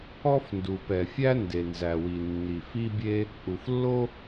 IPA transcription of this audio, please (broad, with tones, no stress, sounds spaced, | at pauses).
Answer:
ɔ˥ f n d u˩ p ɛ˩ fʲ æ˥ n d e˩ n z æ˩ w i˩ nː i˩ f i˥ bʲ e˥ | ʔ u˩ f lː o˥